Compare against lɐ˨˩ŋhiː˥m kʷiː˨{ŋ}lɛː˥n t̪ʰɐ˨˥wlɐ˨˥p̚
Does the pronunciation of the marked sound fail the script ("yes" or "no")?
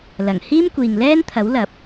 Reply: no